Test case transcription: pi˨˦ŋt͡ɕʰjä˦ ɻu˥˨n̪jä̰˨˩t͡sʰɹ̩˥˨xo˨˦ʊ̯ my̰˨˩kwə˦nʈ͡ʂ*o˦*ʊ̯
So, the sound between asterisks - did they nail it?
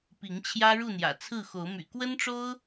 yes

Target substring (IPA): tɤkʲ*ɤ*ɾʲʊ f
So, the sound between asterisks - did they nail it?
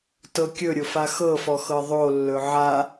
no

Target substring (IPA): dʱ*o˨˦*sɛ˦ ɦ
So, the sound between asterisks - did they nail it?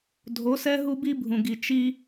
yes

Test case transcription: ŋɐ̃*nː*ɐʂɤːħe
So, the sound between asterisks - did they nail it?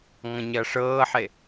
no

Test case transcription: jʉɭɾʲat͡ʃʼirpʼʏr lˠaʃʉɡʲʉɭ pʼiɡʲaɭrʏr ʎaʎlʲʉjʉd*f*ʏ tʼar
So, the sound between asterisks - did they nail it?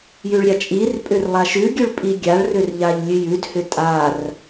no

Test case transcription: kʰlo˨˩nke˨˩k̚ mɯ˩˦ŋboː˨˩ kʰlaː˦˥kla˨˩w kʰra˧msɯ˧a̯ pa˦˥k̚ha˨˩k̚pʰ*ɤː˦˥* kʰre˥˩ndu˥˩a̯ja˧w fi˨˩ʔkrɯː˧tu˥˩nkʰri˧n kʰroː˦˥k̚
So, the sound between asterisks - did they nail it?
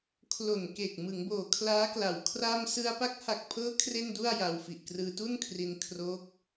yes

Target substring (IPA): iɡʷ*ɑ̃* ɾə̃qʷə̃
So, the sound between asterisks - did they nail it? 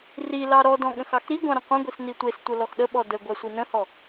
yes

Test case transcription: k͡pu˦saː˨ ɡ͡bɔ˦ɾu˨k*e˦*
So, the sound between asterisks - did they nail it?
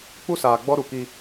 no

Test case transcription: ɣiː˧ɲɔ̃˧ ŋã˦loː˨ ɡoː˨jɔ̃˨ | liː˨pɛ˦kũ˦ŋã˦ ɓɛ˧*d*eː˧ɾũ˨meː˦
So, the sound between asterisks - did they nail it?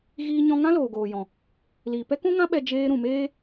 no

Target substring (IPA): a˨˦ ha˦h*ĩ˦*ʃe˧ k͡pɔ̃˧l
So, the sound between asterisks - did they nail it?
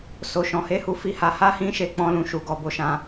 yes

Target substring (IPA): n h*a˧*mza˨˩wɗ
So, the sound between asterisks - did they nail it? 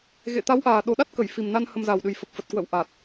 no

